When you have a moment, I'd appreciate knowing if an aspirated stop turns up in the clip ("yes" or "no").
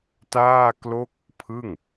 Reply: yes